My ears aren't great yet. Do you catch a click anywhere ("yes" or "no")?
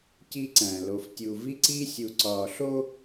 yes